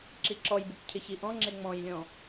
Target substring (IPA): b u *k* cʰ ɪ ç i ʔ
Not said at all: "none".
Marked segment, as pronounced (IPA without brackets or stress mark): k